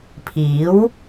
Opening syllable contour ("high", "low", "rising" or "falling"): rising